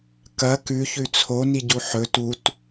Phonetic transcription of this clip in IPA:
kɐ kʉçʉ t͡sʰoniɟu ħɵ tut

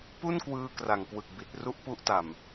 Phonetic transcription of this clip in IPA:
pu˥˩nkwɯː˧ kra˨˩ŋkwɯ˨˩k̚ bi˨˩t̚ ru˥˩ʔpu˦˥ʔta˨˩m

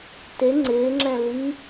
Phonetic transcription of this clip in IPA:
te ŋ͡ǀɪːŋ͡ǁɛ̃ li

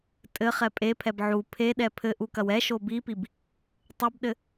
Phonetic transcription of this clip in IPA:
tʼɘχɛ pʼepʰɛb ʕu pʰeɗɛ pʰɘʔukɐw ɛʃo bipib | tˤɘbɗɘ

